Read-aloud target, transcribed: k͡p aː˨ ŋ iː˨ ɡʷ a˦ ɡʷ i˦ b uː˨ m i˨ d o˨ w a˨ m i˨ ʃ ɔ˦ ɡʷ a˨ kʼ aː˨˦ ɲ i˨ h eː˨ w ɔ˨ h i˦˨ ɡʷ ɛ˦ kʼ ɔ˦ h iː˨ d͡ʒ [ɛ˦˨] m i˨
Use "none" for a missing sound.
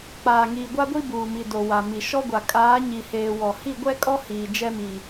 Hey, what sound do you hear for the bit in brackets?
ɛ˦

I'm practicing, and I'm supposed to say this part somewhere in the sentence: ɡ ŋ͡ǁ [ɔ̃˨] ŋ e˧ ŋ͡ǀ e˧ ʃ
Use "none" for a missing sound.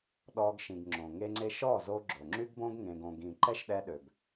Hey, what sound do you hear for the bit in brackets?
õ˨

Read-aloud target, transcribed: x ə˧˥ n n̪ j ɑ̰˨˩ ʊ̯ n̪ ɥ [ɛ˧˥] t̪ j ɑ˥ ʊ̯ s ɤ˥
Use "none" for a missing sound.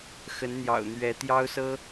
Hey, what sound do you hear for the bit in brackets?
ɛ˧˥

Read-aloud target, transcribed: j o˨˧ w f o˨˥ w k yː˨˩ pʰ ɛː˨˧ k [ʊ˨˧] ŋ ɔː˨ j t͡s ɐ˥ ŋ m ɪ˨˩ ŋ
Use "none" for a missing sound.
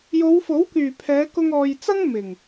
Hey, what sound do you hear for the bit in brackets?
ʊ˧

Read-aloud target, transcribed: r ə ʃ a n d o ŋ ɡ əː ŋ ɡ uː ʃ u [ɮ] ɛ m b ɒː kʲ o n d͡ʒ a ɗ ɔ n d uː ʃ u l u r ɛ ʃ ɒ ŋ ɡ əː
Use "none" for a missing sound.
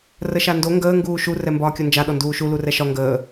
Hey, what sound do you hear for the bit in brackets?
r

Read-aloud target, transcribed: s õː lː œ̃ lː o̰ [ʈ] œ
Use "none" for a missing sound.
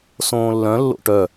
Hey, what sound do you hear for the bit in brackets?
ʈ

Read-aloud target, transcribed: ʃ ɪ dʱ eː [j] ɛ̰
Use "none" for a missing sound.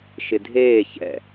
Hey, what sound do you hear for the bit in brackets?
ç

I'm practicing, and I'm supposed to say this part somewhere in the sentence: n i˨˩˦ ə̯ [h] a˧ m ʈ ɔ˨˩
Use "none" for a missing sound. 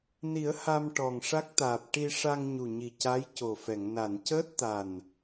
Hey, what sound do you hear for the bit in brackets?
h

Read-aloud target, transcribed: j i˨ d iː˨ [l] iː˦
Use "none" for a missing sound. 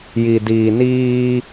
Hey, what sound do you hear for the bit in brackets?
n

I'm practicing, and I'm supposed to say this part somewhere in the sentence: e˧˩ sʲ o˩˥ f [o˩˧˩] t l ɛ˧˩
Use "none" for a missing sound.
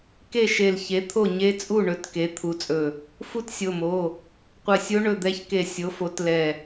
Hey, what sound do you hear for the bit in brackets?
o˩˥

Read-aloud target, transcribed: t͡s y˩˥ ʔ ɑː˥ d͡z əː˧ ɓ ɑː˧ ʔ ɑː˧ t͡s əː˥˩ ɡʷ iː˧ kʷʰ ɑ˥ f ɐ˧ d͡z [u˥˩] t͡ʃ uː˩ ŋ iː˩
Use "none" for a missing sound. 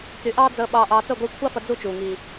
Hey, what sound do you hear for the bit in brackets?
u˥˩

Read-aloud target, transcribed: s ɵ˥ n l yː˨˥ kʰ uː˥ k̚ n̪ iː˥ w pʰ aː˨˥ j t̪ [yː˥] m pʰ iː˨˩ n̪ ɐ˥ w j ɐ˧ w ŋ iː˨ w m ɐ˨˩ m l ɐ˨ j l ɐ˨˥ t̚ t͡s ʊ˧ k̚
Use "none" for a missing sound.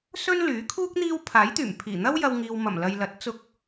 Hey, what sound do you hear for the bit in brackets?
yː˨˩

